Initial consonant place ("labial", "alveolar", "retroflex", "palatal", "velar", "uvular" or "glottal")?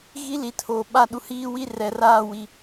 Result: velar